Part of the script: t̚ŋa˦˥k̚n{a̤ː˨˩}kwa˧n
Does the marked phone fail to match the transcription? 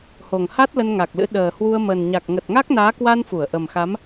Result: yes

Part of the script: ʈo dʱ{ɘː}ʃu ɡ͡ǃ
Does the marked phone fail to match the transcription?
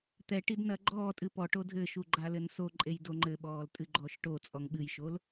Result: no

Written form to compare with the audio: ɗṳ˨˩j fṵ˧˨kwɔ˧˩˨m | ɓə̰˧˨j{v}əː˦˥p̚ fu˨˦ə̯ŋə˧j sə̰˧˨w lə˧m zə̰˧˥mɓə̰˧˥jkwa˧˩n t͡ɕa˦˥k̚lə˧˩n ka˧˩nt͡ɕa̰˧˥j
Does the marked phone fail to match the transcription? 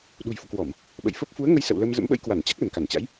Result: yes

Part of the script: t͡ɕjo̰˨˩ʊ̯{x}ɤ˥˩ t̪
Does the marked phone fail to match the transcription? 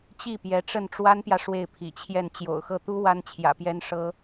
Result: no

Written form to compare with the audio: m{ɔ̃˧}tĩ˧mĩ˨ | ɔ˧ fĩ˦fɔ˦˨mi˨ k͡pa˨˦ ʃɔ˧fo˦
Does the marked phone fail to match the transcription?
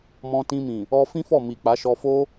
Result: no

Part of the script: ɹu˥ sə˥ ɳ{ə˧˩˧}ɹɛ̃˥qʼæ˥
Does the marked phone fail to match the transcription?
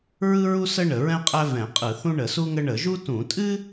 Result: no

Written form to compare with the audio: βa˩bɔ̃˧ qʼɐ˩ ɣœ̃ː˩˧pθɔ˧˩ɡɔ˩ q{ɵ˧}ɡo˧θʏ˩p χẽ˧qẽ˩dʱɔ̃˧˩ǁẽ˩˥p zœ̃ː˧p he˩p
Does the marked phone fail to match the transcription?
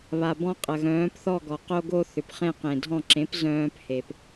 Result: yes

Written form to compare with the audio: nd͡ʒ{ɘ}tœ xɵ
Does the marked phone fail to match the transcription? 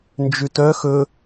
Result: yes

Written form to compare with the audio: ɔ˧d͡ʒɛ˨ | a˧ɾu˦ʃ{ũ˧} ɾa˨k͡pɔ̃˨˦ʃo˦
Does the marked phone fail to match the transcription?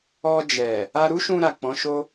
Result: no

